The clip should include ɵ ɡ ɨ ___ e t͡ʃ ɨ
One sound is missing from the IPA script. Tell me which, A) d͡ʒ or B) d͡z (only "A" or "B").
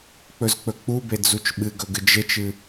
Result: A